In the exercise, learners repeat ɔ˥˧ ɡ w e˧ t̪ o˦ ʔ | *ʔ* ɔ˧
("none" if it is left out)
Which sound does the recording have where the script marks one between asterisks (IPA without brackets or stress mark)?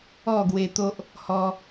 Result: h